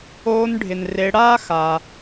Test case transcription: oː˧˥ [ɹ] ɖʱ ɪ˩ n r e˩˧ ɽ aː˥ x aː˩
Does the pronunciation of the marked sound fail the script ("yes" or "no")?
yes